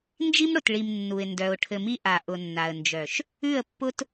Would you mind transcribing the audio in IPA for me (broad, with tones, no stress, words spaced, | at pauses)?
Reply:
nd͡ʒi˦mɽʊ˨t ɭi˨m nːu˨ɪ̯ ndœ˨ʊ̯ ʈʰɘ˨mi˦ʔa˨ ʔʊ˨nːa˨ə̯nd͡ʒœ˨ʃ | ʉ˦˨ə̯pːʊ˦t